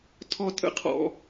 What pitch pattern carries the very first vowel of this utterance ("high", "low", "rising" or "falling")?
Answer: high